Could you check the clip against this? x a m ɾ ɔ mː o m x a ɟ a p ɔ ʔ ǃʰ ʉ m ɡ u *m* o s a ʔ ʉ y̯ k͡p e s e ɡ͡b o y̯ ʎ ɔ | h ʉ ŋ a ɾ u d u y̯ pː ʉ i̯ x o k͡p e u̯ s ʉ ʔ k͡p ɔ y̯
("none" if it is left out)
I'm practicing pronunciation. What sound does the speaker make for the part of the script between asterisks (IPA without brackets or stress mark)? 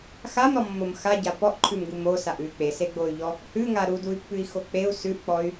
m